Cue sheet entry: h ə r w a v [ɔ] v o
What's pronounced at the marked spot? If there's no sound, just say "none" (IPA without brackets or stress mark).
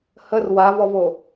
ɔ